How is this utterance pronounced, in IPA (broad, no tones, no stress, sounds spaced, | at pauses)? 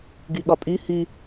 ɡ y ɠ ɒ pʼ y h y